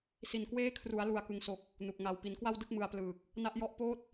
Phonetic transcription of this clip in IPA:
s i˨˩ n k w eː˦˥ kʰ r u˩˦ a̯ l u˨˩ a̯ k ɯ˨˩ ŋ s o˨˩ k̚ | n u˨˩ k̚ ŋ a˧ w p i˩˦ n k w a˥˩ w d ɯ˥˩ k̚ m ɯ˧ a̯ p l ɯː˨˩ k̚ | n a˦˥ ʔ j ɔ˦˥ ʔ p oː˥˩ t̚

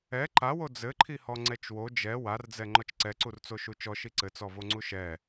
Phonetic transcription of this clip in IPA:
ɛ ǃ a w o d͡z ɘ ǃʰ i h ɔ ŋ͡ǀ ɛ t͡ʃ w o d͡ʒ ɛ w a r d͡z ɛ ŋ͡ǃ ɔ t͡ʃ ǀ ɛ ǀ u r t͡s o ʃ u t͡ʃ ɔ ʃ i ǀ ɘ t͡s ɔ v o ŋ͡ǀ u ʃ ɛ

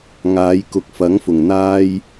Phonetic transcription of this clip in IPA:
ŋ aː˨˧ j k ʊ˨ k̚ f ɐ˨˥ ŋ f ʊ˨˩ ŋ n̪ aː˧ j

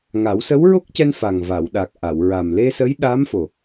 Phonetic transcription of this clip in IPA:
ŋ a˨˩˦ w s ə˧˥ w ɹ o˦˥ k̚ c ɛ˧ n f a˨˩ ŋ v a˨˩˨ w ɗ a˨˩ k̚ ʔ a˨˩˨ w ɹ a˨˩ m l e˧ s ə˧˥ j ɗ aː˧˥ m f o˨˩

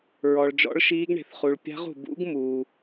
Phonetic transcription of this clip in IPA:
ɹ ɔ˩ ɭ d͡ʒ ɔ̰˦˥ ɭ ʃ iː˦˥ ɡ ɳ e̤˩ θ χ u˩ ɭ pʲ a̤˦˥ ʁ ṳ˩ b ṵ˦˥ ɡ m uː˩

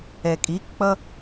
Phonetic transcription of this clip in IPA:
ɛ kʼ i k k͡p ʌ

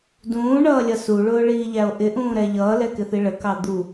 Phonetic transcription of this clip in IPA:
d ũː ɳ ʌː lʲ ʌ s u ɭ ʊː ɭ iː ʎ æ o̯ ʔ ɪ ʔ ũː ɾ ɛ ʎ ʌː l ɛ k ɪ θ i ɭ ə k ɑ d̪ u

